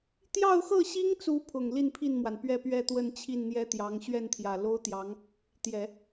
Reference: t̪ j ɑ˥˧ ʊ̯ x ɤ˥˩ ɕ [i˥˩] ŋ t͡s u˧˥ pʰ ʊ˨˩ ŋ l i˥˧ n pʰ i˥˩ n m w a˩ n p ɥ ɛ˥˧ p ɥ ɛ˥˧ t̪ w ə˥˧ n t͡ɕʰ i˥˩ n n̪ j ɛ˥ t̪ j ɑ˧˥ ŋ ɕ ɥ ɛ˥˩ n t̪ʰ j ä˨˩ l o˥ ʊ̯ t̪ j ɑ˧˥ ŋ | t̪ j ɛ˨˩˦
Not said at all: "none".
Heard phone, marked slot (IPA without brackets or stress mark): i˥